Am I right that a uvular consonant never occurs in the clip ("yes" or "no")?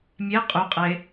no